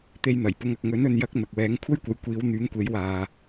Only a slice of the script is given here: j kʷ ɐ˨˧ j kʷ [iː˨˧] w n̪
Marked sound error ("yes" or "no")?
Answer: no